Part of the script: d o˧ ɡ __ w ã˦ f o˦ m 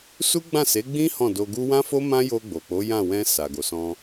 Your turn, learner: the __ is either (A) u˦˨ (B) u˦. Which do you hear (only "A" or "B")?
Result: B